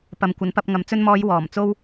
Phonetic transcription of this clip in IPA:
p ɐ˨ m kʷ ɐ˨˥ n p ɐ˧ p̚ ŋ ɐ˨˧ m t͡s ɵ˧ n m ɔː˨˧ j w ɔː˨˩ m t͡s o˥ w

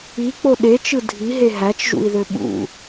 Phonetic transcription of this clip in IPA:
i k͡p o ɗ e t͡ʃ ɯ dʱ i ɦ e ɦ æ t͡ʃ ʒ ṵ i̯ ð ø ɓ ṵ

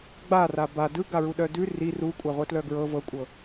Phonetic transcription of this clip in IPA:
ɡ͡b a r a b a d ɯ ɡ a ɹ u ɗ œ d ʉ r i r u kʷʼ a ʁʷ œ t l œ ɡ ɹ ɤ v ɤ kʷʼ ɤ

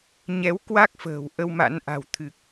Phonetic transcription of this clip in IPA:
ɲ ɛ˨˦ w k w a˦˥ k̚ f ə̤ː˨˩ w ʔ ə˧ w m a̰˧˥ n ʔ a̤˨˩ w t̪ʰ ɨ˨˩ k̚

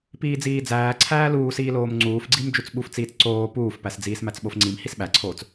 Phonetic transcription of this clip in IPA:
p iː d͡z iː d͡z æː ǀʰ æː l uː s iː l oː m ŋ͡ǀ uː f ɡ͡ǀ i m d͡ʒ u t͡s ɓ u f t͡s iː t͡s ǀ oː p uː f p æ s d͡z iː s m æ t͡s ɓ o f ŋ͡ǀ i m h i s ɓ æ ǀʰ oː t͡s

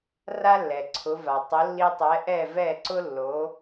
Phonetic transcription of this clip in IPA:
r a˥ lː ɛ˩ ǀʰ ʊ˩˥ v a˩ tˤ ʊ˩˥ lː i˧ tˤ ɛ˩˥ ʔ ɛ˥˩ v ɛ˥˩ ǀ ʊ˥ lː o˩˥

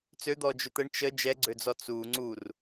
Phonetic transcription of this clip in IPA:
t͡s ø d̪ ɔ d͡ʒ ø t̪ ə ɳ t͡ʃ ə d͡ʒ ɛ ɡ͡ǀ ø d͡z ɔ t͡s u ŋ͡ǀ u r

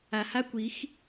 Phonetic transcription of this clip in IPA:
a˨ h a˦ kʷ i˨˦ x

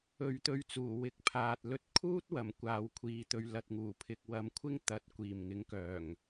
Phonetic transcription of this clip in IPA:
ɵ˨˧ ɥ t̪ ɵ˧ ɥ t͡s uː˨˩ w ɪ˨˥ k̚ pʰ aː˨ t̚ l ɵ˨˥ t̚ kʰ uː˥ t̚ w ɐ˨˩ m kʷ aː˨ w kʷʰ iː˨ t̪ ɵ˨ ɥ l ɐ˨ t̚ ŋ uː˨˩ pʰ ɪ˨ k̚ w ɐ˨˧ m kʷʰ ɪ˥ ŋ t̪ ɐ˨ t̚ kʷ iː˨˩ m ŋ ɪ˨˥ ŋ k œː˨˩ ŋ

